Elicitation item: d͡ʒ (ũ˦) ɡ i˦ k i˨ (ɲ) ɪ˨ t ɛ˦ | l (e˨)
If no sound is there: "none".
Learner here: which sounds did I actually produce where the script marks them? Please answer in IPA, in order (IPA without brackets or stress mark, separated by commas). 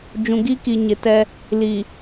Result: ũ˨, ɲ, i˨